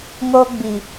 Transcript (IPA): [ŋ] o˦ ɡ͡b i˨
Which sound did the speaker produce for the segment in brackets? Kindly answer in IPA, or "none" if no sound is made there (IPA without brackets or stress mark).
ŋ